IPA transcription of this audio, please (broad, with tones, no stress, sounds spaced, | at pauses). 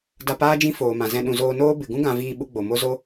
d a˧ p aː˦ d͡ʒ ĩ˦ f oː˨ m ã˨ z ɛ̃˧ ɗ ũ˨ z oː˧ n oː˦ b ɨ˧ ɡ ũ˦ ɡ ã˧ v iː˧ ɓ u˦ ɡ͡b o˨ m o˦ z o˦